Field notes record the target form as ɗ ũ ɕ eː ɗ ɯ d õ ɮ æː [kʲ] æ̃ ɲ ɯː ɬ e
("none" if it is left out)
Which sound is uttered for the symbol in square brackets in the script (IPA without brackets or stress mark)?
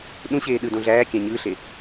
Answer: kʲ